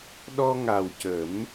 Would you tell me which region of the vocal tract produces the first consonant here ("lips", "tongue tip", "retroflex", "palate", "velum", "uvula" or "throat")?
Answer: tongue tip